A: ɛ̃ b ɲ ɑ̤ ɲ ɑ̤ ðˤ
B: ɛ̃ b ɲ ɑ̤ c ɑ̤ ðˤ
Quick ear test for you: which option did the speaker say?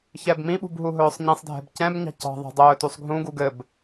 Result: B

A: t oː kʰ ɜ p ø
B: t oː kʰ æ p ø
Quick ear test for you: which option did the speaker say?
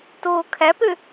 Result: B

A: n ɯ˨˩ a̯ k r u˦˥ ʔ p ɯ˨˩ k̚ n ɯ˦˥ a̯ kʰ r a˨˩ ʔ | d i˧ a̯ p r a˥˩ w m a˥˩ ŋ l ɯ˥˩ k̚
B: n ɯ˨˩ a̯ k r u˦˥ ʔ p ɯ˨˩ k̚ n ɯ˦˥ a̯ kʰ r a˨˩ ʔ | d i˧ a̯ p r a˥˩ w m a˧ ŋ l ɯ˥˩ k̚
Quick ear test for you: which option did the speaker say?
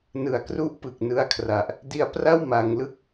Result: B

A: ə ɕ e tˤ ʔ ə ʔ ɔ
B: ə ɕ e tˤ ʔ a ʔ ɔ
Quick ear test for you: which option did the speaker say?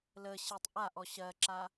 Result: B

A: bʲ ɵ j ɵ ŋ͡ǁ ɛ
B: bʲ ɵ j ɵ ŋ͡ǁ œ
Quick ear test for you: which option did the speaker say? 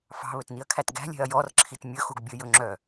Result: B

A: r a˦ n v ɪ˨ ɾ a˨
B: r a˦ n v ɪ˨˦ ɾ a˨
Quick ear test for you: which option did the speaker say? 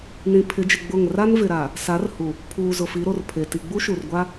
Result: A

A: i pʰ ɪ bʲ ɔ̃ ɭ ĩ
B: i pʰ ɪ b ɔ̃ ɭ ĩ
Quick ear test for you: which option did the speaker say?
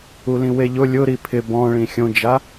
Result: B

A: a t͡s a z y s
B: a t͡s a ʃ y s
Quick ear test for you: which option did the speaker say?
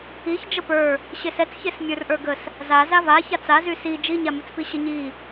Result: A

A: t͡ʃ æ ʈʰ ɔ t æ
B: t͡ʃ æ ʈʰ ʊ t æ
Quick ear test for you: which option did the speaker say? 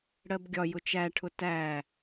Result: B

